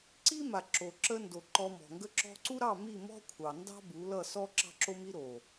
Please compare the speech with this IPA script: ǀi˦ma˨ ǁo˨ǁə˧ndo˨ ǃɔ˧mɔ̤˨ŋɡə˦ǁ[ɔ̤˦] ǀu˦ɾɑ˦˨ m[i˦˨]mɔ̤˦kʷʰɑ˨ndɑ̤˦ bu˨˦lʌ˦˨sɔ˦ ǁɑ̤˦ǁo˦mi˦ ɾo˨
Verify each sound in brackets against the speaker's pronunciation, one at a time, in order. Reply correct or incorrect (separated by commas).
correct, correct